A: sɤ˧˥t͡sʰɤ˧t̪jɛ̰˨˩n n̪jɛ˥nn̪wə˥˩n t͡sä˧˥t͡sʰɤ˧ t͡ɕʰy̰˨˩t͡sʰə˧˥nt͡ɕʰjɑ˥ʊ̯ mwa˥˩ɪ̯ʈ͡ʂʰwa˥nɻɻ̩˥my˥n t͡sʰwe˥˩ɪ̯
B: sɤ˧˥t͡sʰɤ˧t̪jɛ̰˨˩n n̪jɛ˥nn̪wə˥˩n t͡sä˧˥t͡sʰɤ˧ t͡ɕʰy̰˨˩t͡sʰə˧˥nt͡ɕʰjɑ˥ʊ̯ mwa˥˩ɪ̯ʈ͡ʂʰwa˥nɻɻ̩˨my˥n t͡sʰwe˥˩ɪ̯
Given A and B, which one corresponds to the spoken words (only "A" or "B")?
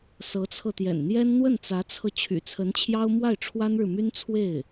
B